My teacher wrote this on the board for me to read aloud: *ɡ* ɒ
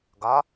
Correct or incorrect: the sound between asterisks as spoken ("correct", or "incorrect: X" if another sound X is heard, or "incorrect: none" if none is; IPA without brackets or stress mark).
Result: correct